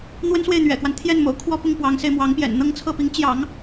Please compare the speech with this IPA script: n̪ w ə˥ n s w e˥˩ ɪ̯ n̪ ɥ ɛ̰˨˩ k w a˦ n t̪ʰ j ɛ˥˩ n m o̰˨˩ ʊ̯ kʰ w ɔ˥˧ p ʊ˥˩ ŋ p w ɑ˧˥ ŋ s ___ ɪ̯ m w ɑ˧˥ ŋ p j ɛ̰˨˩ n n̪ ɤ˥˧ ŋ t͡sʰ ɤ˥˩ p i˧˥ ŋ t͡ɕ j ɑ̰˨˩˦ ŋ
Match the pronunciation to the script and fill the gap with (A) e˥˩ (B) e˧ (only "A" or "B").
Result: B